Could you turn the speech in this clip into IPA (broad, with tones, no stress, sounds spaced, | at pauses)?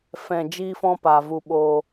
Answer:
f ɛ̃˨ d͡ʒ iː˦ f ɔ̃˦ p a˨ v u˧ ɓ oː˧